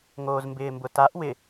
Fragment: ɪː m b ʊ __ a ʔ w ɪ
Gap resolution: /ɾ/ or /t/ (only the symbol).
t